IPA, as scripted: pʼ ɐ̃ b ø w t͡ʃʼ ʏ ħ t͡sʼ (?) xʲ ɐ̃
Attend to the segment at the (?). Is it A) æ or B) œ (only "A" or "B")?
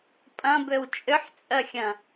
B